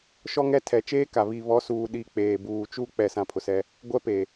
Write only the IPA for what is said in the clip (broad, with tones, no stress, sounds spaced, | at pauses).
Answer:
ʃ ɔ˦ ŋ ɛ˦ tʰ ɛ˨ t͡ʃ eː˦ k a˨ β i˨ β ɔ˨˦ s uː˨ ɗ i˦˨ k͡p eː˨ b uː˨ t͡ʃ u˦ k͡p ɛ˦˨ s ã˦˨ pʰ ʊ˨ s ɛ˦ | ɡʷ ɛ˦ p eː˨